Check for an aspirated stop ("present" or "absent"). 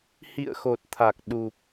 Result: present